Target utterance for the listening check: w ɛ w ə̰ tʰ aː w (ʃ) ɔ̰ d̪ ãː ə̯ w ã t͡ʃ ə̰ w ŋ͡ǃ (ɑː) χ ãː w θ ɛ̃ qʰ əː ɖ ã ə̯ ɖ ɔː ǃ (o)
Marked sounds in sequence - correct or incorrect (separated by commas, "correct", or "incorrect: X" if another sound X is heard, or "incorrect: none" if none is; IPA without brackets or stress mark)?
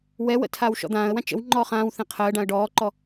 correct, incorrect: ɔː, incorrect: ɔ